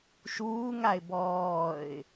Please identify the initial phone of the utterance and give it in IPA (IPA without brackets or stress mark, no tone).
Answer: ʃ